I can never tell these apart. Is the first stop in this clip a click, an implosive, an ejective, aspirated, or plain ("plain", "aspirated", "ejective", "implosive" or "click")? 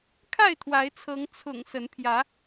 aspirated